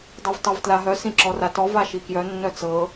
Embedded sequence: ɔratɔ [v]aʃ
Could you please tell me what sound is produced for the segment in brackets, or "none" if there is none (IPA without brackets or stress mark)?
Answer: v